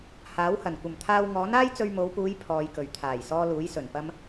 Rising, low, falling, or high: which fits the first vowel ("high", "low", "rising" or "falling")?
rising